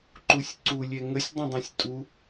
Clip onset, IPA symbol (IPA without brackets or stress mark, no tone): ǃ